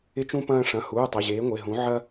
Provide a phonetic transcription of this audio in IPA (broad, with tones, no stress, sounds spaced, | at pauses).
ɪ˥ t͡ʃ ũ˥ p ɐ̃ː˥ ʂ ɐ̃˩˧˩ h uː˩˧˩ tˤ e˩˧˩ ʑ eː˨˥ ŋʷ e˩˧˩ ɦ ũ˨˥ ʕ ɐ˥